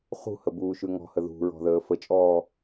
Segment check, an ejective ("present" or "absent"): present